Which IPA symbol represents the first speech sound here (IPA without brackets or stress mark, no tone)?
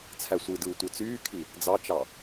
t͡sʰ